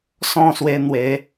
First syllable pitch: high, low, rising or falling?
falling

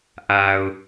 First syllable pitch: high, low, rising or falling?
low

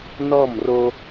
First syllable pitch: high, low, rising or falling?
falling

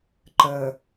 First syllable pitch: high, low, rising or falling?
low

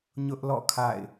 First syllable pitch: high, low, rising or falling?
high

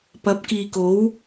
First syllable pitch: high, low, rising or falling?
rising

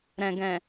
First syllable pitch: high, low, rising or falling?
low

